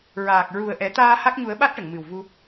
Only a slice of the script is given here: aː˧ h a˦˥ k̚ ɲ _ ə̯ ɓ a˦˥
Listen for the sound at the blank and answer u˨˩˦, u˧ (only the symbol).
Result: u˨˩˦